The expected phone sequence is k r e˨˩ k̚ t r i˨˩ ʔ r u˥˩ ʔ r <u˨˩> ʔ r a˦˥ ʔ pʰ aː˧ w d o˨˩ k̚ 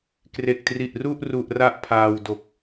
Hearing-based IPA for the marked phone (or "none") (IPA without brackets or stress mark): u˨˩